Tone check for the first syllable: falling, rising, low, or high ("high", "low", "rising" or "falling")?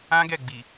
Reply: high